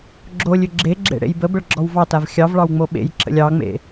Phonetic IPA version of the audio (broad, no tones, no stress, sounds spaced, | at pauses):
ɡ͡ǁ o lʲ ʏ ɡ͡ǁ e ɡ͡ǁ ḛ ɽ ḛ j b ə b ə ɭ ɡ͡ǁ ɔ w v ɑ t a v xʲ ɑ v ɭ ɑ w ŋ͡m o ɓ ḛ j ǁ ə̰ lʲ ɑ ŋ͡m ḛ